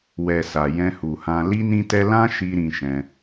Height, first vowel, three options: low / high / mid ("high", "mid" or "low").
mid